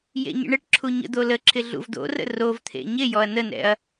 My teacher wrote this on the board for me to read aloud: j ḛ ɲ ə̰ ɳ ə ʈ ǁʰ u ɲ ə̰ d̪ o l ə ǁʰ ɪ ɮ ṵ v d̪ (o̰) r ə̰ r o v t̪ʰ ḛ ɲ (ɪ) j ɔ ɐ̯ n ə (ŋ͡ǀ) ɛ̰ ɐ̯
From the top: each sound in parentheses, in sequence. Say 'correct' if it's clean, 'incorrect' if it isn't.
correct, correct, incorrect

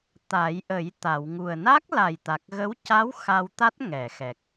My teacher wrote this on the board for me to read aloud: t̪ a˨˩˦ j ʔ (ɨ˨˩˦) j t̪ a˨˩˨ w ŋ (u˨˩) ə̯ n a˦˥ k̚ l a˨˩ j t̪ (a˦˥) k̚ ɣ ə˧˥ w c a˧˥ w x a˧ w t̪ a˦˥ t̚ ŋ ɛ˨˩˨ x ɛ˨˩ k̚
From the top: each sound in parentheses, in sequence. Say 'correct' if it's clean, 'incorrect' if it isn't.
incorrect, correct, incorrect

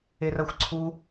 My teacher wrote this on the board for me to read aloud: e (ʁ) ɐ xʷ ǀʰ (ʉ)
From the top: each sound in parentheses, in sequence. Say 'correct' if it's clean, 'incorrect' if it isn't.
incorrect, incorrect

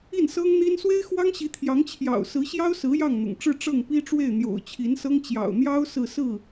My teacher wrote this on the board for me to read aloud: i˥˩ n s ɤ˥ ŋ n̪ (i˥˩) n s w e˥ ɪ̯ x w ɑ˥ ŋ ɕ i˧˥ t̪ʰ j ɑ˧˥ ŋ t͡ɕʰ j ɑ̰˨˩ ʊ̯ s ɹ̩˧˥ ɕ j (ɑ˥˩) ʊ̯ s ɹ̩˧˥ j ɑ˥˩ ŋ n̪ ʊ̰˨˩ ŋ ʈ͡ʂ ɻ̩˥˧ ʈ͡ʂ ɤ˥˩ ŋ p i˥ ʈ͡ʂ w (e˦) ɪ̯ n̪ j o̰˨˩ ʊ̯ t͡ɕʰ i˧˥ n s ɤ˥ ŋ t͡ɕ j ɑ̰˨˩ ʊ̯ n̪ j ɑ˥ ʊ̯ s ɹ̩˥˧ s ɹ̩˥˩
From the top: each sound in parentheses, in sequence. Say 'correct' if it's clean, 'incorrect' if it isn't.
incorrect, incorrect, incorrect

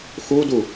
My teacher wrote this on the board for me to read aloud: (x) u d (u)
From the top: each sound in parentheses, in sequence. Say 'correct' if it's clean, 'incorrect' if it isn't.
correct, correct

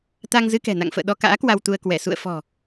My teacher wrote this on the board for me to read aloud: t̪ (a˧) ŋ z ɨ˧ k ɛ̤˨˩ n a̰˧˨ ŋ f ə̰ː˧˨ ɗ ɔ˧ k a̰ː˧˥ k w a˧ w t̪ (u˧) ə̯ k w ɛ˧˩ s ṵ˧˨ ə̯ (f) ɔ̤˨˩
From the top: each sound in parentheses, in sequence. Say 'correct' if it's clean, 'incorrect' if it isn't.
correct, correct, correct

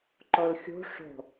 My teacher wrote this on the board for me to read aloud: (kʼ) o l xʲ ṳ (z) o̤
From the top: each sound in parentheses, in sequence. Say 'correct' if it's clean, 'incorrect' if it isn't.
incorrect, incorrect

